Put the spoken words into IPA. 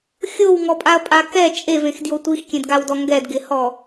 xʲ o w ŋ ɔ pʼ a ɐ̯ pʼ a k ɛ t͡ʃʼ e v ẽ x d j o tʷ i x kʲ ẽ d ɡ a w d ɔ ŋ ɡ ɛ d ɡ ɪ h ɔ

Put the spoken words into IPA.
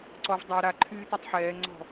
ǀ ɔ v dˤ a ɾ a ǃʰ yː t e tˤ ħ ɛː ŋ͡ǀ ɔ̤

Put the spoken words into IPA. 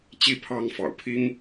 t͡ɕ i˥˩ pʰ ɑ˥ ŋ f ɑ̰˨˩ ʊ̯ pʰ i˥ ŋ

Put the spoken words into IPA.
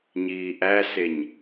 ɲ iː ʔ æ s e ɲ

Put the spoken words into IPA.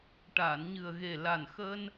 ʈ aː˨˩˨ n ɲ ɨ˨˩ ə̯ ɣ e˨˩ l a˨˩ n x əː˧ n

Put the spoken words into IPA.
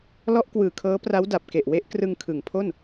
l ɔ˦˥ ʔ k w ɯː˨˩ kʰ ɤː˦˥ p r a˦˥ w d a˨˩ p̚ k e˨˩ ʔ w e˦˥ ʔ k r ɯ˧ ŋ kʰ ɯ˩˦ ŋ pʰ o˥˩ n

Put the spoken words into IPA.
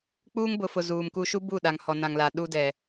k͡p uː˦ ŋ b ʊ˨ f ʊ˨ z uː˨ m k u˦ ʃ u˦ b u˦˨ ɗ a˨ ŋ h ɔ˨ n ã˨ ŋ l a˨ ɗ u˦ d ɛ˨

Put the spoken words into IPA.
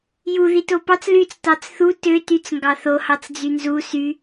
j u ð i t o p ɑ t͡s l y t͡s t ɑ t͡s θ u t ø t y t͡s ŋ ɡ ɑ θ o h ɑ t͡s d͡z y n z u s y

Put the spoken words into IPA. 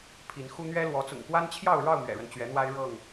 pʰ i˨˦ n x u˦ n̪ ɥ ɛ˦ l w ɔ˨˦ t͡s ʊ̰˨˩ ŋ k w a˦ n t͡ɕʰ j ɑ˥˨ ʊ̯ ɻ ɑ˥˨ ʊ̯ m ɥ ɛ̰˨˩ ɻ ə˦ n t͡ɕ ɥ ɛ˨˦ n̪ w a˦ ɪ̯ ɻ ɤ˥˨ ŋ

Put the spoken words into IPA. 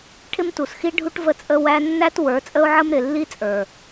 ʈʰ ɪ˦ m t u˨ s x i˦ ɖʱ u˦ ʈ v ə˦ t͡sʼ ə˦ w æ˧ nː æ˦ t w ə˞˨˦ t͡sʼ ə˦ ʊ̯ ʕ ə˦ m ɾ ɪ˨ lː i˦ t͡sʼ ə˞˨

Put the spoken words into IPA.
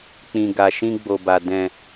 k͡p ĩ˨ ɡ a˨ ʃ ĩ˧ ɡ͡b o˨ b a˨ d ɛ̃˨

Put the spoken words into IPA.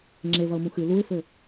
ŋ͡ǁ e v ɐ ʊ̯ m ũ x ɨ l u ɪ̯ f ɘ

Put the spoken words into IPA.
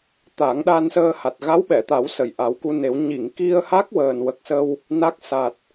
t̪ a˨˩˦ ŋ ɗ a˧ n s əː˧ h a˨˩ t̚ ɣ a˧˥ w ɓ ɛ˨˩˨ t̪ a˨˩˦ w s ə˨˩ j ʔ a˨˩˦ w k u˧ n e˨˩˦ w ɲ i˨˩˨ ŋ k i˧ ə̯ h a˦˥ k̚ w əː˨˩ n w ə˨˩ k̚ s ə˧ w | n a˦˥ k̚ s a˨˩ t̚

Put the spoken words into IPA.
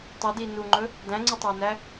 tˤ ə d i n u ŋ͡ǃ ɵ | d æ̃ ŋ͡ǀ u tˤ æ n æ

